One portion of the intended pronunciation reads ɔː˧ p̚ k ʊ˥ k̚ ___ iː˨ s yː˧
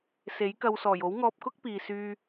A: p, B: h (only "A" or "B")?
A